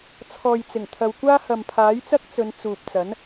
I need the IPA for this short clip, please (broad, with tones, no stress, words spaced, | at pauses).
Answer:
t͡sʰɔː˨jt͡sɪ˨˩ŋ t̪ʰɐ˨wkʷaː˥ hɐ˨mpʰaː˨˥jt͡sɐ˥k̚t͡sɵ˨˧n t͡suː˨p̚t͡sɐ˨˥n